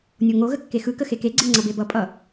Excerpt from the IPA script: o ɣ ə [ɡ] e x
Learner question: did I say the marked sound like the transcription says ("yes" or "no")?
no